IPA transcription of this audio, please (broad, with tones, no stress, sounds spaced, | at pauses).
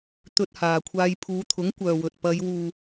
t̪ ɵ˧ t̚ h aː˨ kʷʰ aː˧ j pʰ uː˨˧ t̪ʰ ʊ˨˥ ŋ kʷ œː˨ w ɵ˨ t̚ p ɐ˨˧ j w uː˨